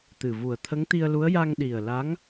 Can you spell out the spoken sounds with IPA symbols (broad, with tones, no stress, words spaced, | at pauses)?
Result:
t̪ɨ˨˩vu˨˩ə̯ t̪ʰə˧˥ŋt̪i˧ə̯lu˧˥ə̯ ja˧ŋɗi˨˩ə̯la˧˥ŋ